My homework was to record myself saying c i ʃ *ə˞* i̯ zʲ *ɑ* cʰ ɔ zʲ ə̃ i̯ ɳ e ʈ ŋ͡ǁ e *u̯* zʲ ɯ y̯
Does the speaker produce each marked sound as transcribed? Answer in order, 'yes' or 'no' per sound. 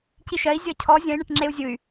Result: no, no, yes

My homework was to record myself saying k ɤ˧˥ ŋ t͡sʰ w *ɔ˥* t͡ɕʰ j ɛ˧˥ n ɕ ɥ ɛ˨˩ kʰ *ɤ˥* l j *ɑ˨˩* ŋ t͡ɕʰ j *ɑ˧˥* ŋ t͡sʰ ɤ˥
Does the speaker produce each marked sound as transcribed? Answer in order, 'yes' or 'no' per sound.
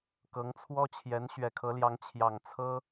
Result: yes, no, no, no

